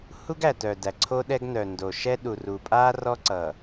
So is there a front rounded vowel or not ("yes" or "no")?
yes